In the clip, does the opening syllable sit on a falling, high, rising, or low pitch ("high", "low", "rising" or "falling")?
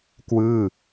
falling